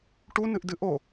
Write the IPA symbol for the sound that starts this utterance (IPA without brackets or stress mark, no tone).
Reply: ʈ